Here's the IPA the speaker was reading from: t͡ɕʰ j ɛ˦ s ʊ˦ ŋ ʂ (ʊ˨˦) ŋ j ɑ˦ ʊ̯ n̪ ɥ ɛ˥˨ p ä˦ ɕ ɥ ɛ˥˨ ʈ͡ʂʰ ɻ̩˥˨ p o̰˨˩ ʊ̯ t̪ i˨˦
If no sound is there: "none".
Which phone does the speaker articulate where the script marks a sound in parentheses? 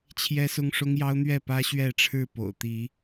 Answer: ʊ˦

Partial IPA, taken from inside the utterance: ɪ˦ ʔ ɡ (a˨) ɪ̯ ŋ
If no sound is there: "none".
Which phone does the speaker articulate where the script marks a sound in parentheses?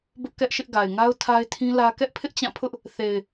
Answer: a˨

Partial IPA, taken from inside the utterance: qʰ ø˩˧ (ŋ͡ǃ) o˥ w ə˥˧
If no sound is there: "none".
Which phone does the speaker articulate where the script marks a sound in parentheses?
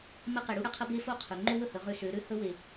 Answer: ŋ͡ǃ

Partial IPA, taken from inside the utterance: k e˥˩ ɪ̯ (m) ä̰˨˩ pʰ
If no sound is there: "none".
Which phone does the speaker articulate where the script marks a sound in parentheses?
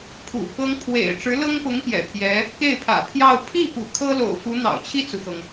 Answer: pʰ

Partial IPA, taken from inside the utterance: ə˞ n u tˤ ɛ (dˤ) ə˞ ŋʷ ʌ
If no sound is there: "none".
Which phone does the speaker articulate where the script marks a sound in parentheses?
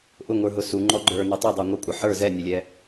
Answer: dˤ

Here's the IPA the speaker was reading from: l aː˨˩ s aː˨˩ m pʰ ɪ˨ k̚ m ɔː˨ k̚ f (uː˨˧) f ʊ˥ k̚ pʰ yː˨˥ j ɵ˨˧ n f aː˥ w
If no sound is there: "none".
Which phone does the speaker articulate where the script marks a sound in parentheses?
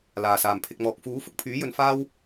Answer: uː˨˥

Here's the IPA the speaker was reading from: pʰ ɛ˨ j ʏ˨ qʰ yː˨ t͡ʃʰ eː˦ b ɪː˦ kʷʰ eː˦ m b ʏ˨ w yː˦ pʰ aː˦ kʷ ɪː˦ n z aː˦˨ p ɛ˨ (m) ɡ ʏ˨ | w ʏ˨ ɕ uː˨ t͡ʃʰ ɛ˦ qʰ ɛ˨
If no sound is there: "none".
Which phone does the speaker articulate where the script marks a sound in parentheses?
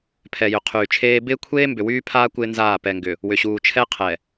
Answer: ŋ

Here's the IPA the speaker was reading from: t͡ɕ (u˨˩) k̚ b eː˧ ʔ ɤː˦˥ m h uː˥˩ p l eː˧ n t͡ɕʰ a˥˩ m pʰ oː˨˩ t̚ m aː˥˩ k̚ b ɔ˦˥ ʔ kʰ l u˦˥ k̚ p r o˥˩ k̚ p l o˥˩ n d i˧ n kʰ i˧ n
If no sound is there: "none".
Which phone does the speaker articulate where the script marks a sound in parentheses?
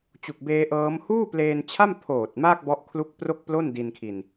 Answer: u˨˩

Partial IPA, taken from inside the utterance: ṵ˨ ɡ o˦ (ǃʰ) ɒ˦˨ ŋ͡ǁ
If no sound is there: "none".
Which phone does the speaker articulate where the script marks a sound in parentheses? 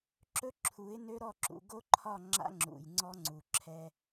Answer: ǃʰ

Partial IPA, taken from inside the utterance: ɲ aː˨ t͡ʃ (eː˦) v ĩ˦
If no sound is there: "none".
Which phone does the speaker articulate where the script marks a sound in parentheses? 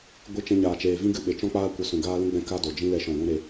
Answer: eː˨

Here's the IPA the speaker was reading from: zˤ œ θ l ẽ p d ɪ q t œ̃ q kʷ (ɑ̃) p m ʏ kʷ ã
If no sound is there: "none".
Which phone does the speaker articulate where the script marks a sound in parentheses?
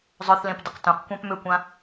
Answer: ã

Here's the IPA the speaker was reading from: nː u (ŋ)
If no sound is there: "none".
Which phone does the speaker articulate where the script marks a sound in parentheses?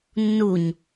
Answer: ɲ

